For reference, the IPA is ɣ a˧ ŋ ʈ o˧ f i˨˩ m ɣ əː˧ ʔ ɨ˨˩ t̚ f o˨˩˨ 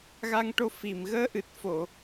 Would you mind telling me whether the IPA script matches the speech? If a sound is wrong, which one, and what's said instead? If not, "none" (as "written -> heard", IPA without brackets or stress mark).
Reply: none